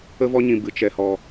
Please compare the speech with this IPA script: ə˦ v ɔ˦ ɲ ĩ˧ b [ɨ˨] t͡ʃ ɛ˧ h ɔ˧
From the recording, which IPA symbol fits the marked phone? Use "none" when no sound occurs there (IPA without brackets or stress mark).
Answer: ɨ˨